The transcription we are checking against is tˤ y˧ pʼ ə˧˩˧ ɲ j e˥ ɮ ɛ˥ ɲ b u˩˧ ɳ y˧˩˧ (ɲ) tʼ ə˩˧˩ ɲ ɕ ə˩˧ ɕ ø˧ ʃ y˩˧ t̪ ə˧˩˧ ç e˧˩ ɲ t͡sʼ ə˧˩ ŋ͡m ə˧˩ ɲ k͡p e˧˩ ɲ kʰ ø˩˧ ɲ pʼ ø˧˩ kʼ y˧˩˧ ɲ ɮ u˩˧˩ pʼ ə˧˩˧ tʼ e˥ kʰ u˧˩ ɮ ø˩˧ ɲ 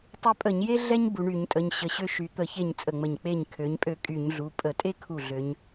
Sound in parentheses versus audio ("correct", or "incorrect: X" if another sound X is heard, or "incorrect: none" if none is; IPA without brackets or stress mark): correct